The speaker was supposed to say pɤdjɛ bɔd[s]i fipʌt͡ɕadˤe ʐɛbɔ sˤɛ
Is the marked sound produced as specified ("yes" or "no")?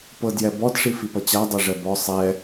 no